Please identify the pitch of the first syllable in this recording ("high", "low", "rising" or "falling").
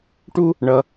high